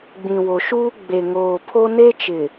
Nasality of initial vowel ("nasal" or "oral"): nasal